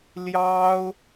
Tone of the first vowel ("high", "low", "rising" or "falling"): high